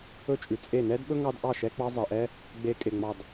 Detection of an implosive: present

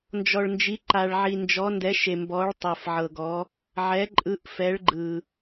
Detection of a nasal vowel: absent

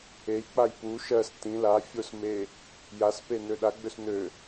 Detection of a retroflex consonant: absent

